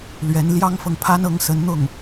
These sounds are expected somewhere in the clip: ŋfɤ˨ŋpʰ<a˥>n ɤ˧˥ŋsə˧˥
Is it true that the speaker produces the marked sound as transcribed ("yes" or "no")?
yes